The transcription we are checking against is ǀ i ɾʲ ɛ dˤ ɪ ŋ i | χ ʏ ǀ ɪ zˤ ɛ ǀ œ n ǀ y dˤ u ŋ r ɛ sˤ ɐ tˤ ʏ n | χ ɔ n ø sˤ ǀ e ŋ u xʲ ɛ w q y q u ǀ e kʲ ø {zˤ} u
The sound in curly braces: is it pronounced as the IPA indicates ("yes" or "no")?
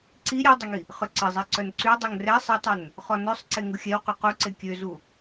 no